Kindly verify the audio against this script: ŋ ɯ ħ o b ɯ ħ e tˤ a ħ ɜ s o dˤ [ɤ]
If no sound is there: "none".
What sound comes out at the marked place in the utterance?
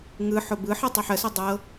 ɤ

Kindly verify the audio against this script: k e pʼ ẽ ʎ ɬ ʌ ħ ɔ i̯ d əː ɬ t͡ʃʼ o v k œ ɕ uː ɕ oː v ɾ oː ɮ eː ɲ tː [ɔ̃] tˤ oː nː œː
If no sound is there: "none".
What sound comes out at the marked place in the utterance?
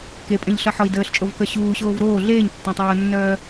ɔ̃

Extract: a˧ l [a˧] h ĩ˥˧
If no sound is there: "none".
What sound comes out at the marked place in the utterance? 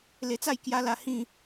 a˧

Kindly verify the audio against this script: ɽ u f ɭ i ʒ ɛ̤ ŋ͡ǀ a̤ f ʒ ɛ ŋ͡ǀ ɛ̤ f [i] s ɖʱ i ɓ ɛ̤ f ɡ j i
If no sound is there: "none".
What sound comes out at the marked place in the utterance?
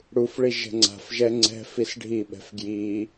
i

